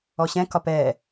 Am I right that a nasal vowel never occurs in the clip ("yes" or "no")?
no